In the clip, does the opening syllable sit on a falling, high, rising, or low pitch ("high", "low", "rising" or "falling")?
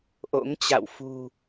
rising